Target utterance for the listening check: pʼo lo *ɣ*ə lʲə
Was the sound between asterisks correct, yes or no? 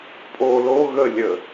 yes